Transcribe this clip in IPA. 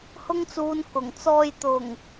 h ʊ˥ ŋ t͡s uː˧ n k ʊ˨˩ ŋ t͡s ɔː˨ j t̪ ʊ˨˩ ŋ

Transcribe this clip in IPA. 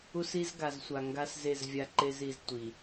u˦ s i˦ z ɡ a˨ z sʷ a˨ ŋ ɡ a˦ s z e˦˨ z vʲ a˦ ǃ e˦ z i˨ z tʷ i˨

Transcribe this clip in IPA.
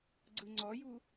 ɡ͡ǀ ɯ ŋ͡ǀ ɔ j u

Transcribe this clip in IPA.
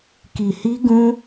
k i˧ h i˦ ɡ ũ˦

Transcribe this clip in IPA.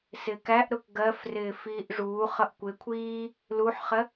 s ɪː k æ ʔ ɾ ʊ k ɡ ɜ f r ɪː f iː ʔ ʐ uː χ ʌ ʔ kʷ ɪ kʷʰ iː | l u ħ χ ɜ

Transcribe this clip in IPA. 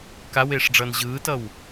k a w eː ʂ ɖ͡ʐ ʌː n ʑ ɯː t ʌ w

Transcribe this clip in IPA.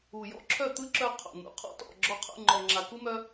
u˨ j ɔ̰˦ ǁʰ œ˦˨ t̪ ɯ˦ ǁ œ˧ qʰ o̰˨ n̪ ṵ˨ qʰ ɔ̰˦ t ɔ̰˦˨ ɡ͡ǁ ɔ˧ qʰ ṵ˦˨ ŋ͡ǃ ɔ˨ ŋ͡ǁ a˨ k u˦ m œ˦

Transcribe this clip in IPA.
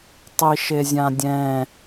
tˤ i ʃ e zʲ ã dʲ ɛ̃

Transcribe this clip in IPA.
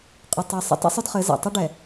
qʼ ʊ˨ tˤ ɛ˨ sˤ ə̰˦ tˤ ə̰˦ sˤ ʊ˦ d χ ɘ˨˦ z a̰˨ tˤ ʊ˦ ɖ ɛ˨

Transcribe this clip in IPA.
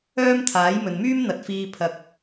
œː˥ m t̪ʰ aː˨˥ j m ɵ˨ n m yː˥ m n̪ ɐ˨ t̚ f iː˧ pʰ ɐ˧ k̚

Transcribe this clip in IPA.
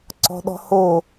ǀ ɔ̤ ɗ ɔ̤ h o

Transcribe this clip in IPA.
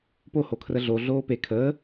p o h o kʰ r ə ɮ o ɮ oː p e kʰ əː

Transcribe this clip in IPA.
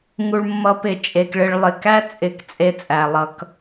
ŋ u˨ ɭ mː ʌ˨˦ p ɪ˨ t͡ʃʼ e˨ k ɭ ɪ˨ ɭ lˠ ɪ˨ k æ˦ t͡sʼ ɪ˨ k t͡sʼ e˨˦ t͡sʼ æ˨ lˠ ʌ˦ k

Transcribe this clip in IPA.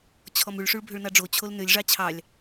t͡ɕʰ ɔ m ʉ ɭ ʂ ʉ ɭ bʱ ø ɭ n ɑ ɖ͡ʐ o t͡ɕʰ o l n ø lʲ ʐ ɑ t͡ɕʰ ɑ lʲ

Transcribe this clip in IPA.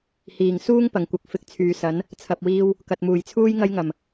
h iː˨˩ ŋ s uː˥ ŋ p ɐ˨˩ ŋ kʷ ɐ˨˥ k̚ f ɪ˨˥ k̚ t͡sʰ yː˨˧ s ɐ˨˥ n | t͡sʰ ɐ˨ p̚ w iː˧ w | k ɐ˨ t̚ m uː˨˩ j t͡sʰ uː˥ j ŋ ɐ˥ j ŋ ɐ˨˩ m

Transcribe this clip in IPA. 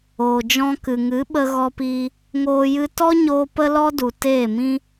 oː˨ d͡ʒ ɔ̃˧ k ɨ˨ ŋ ɨ˨˦ ɓ ə˧ ɣ ɔ˧ p iː˧ | ŋ oː˧ j ɨ˦ t ɔ˦ ɲ oː˧ p ə˦ l ɔ˦ d u˨ t eː˦˨ m ĩ˦

